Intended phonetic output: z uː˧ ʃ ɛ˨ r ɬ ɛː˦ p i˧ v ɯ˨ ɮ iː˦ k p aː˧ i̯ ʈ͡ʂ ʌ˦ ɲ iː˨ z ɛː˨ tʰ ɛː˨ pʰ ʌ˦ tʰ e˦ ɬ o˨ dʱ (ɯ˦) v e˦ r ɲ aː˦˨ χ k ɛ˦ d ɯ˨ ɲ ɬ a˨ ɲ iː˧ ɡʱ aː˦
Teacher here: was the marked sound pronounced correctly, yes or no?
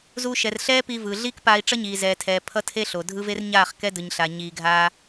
yes